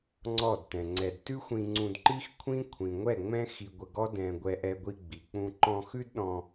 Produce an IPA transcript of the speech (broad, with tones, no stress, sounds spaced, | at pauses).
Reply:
ŋ͡ǀ ɔ˦˨ d t ɛ̃˨ ŋ͡ǀ ɛ˧ d t ʉ˦ xʷ ĩ˧ ŋ͡ǀ ũ˧ d ǃ i˦ x kʷʰ ĩ˦ kʷʰ ĩ˨ ŋʷ ɛ˦˨ ŋ͡m ɛ̃˦ x i˧ ɡʷ ə˧ ɡ ɔ˦ d ɛ̃˧ ɡʷ ɛ˧ ʔ ɛ˧ ɡʷ i˧ ɡ͡b i˨ k͡p ũ˧ ǃ ɔ̃˧ x ʉ˦ d ɗ ɔ̃˧